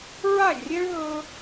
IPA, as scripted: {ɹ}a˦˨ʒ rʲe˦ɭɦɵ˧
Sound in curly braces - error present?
no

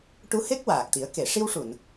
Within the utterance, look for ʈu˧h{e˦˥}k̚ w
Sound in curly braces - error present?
no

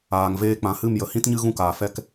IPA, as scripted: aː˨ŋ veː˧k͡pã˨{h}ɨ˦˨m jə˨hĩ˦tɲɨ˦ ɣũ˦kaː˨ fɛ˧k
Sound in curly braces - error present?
no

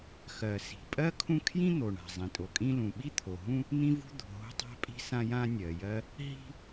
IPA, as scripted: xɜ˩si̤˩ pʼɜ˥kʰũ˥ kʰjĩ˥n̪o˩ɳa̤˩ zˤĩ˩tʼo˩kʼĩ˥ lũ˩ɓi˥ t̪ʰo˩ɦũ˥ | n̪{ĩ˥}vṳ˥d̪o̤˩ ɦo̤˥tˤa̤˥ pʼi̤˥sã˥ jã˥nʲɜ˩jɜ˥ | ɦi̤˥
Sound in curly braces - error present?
no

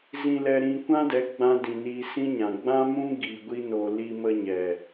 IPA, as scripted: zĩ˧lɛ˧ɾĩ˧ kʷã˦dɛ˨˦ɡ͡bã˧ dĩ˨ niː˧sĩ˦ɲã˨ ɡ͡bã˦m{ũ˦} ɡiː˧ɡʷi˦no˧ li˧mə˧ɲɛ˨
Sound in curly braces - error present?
no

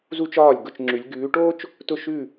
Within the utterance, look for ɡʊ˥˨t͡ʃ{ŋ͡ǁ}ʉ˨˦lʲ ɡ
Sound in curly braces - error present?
no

